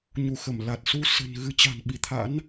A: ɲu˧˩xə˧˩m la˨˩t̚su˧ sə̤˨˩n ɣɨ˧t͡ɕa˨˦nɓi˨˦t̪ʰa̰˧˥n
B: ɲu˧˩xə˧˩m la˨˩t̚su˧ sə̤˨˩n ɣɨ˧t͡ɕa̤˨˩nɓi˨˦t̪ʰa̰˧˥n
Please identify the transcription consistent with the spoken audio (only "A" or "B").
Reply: B